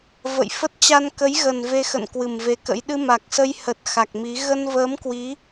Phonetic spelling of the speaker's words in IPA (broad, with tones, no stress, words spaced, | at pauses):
və̰˧˨jfə˦˥t̚ t͡ɕa˧nkə˨˦jɣə˨˩n ve˧xə̰˧˨n kwɨ˨˩mve˨˦kə̰˧˥j ɗɨ˧ma˨˩k̚sə˧j hə˨˩t̚ xa˨˩k̚mi˨˦ ɣə˧nvəː˨˦mkwi˨˦